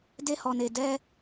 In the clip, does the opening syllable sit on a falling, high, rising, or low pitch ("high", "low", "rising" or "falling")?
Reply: high